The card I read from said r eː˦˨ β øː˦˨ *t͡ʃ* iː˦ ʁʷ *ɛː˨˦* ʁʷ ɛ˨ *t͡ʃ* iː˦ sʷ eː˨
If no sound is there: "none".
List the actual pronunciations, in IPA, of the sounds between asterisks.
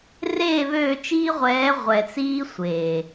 t͡ʃ, ɛː˨˦, t͡s

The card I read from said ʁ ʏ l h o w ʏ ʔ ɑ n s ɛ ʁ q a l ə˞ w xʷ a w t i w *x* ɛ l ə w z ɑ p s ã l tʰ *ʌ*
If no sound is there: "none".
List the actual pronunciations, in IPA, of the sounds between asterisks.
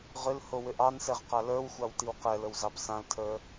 q, ə˞

